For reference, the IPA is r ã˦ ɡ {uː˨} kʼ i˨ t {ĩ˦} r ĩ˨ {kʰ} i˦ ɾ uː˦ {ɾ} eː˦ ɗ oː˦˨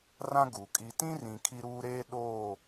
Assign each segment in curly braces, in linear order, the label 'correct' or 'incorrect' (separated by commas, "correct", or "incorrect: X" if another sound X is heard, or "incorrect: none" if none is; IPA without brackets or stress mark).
incorrect: u˨, correct, correct, correct